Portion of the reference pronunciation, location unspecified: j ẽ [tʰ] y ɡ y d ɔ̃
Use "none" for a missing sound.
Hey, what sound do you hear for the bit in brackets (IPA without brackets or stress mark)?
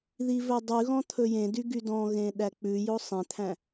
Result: d